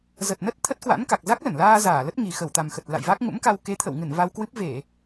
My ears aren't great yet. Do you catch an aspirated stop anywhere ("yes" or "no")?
yes